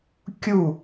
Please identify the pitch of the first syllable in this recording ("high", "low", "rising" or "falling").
falling